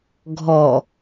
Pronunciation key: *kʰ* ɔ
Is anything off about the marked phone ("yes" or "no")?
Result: yes